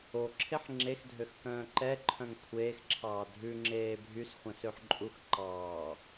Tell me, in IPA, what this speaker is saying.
o ǁʰ e ħ ŋ͡ǁ e x dʱ ø x k œ̃ː ǃ ɛ ǃʰ œ̃ ŋ kʷʰ eː x ǁʰ ɑː dʱ ʉ ŋ͡ǁ eː bʱ y s χʷ ɛ̃ s ø ħ ǃʼ u x ǃ ɑː

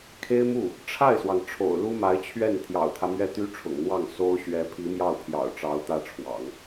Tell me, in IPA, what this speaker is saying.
kʰ e˥ ɪ̯ m u˥˩ | ʈ͡ʂʰ a˥˩ ɪ̯ s w ɑ˩ ŋ ʈ͡ʂʰ o̰˨˩ ʊ̯ l u˥ m a˧˥ ɪ̯ t͡ɕʰ ɥ ɛ˥˩ n t̪ʰ j ɑ̰˨˩ ʊ̯ t̪ʰ ä˦ m ɥ ɛ˥˩ t̪ y˥ ʈ͡ʂʰ ʊ̰˨˩ ŋ n̪ w ɑ˥˩ ŋ s o˥ ʊ̯ ɕ ɥ ɛ˧˥ pʰ i˧˥ m j ɑ˥˩ ʊ̯ pʰ j ɑ̰˨˩ ʊ̯ ʈ͡ʂ ɑ˧˥ ʊ̯ t̪ ä˥˩ ʈ͡ʂʰ w ɑ̰˨˩˦ ŋ

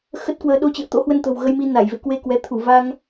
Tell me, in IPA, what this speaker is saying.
x ə˦˥ t̚ k w əː˧ ɗ o˧ t͡ɕ ɨ̰˧˨ ə̯ t̪ o̰˧˥ h w ə˧ n t̪ ə̤˨˩ w ɣ ə˧ j m i˧ n a˧˩ j v ḛ˧˨ k w e˧ k w ɛ˨˦ t̪ʰ u˧˩ v a˧ ŋ

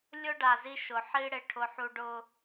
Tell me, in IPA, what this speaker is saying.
lʲ ʊ˦ ɖ a˨ z i˦ ʃ ʊ˨ ħ i˦ ɽ ɪ˨ ʈʰ ʊ˨ ħ u˨ ɖ ʊ˨

